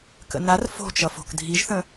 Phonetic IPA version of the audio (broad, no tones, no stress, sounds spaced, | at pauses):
k ə̰ n a r f o̤ t͡ʃ ʌ f o̤ k dʱ i ʒ θ ə̃